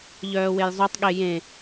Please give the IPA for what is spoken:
ʎœːwejzˤotˤɠe jẽ

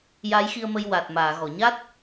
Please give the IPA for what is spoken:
ja˧˥jxi˧ə̯mə˧j wa˨˩t̚ maː˨˩˨ɣɔ˨˩˨ɲa˦˥t̚

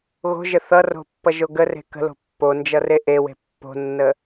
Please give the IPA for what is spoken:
ɣo̤ʒə θʌro̤pːʌʒo ɡəre̤ kə̤lo̤ pːond͡ʒʌre ʔewe̤ pːo̤nːə

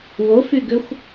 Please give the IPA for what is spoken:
wofyɡøxʷ

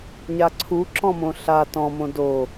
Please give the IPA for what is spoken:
ɲaǀʰu ǁɔ̃mõɬa tɔ̃ mõdo

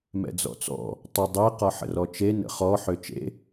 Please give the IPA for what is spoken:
mɛ̰d͡zɔ̰t͡sɔ̰ | tˤə dˤe qɒħə̰rɔt͡ʃe nə̰χɔ ħøt͡ʃḛ

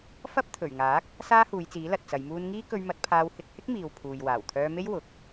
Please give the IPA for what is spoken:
fɐ˥p̚ t̪ʰɵ˨˩ɥ ŋaː˨˥k̚ | saː˥huː˨˧jt͡siː˨˥ lɐ˨t̚t͡sɐ˨˧jmuː˥n ŋiː˥ kɵ˧ɥmɐ˨˥t̚pʰaː˧w hɪ˧k̚hɪ˥k̚miː˨w pʰuː˨j waː˨˩wt̪ʰœː˧me˥j wʊ˨k̚

